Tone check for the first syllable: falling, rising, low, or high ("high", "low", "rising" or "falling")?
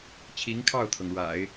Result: rising